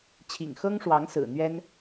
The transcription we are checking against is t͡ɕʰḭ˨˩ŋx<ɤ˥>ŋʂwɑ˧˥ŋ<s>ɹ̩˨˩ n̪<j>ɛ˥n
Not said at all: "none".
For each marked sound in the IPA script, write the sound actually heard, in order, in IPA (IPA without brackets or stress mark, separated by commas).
ɤ˥, s, ɥ